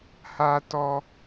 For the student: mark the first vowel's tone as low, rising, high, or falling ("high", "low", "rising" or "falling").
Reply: high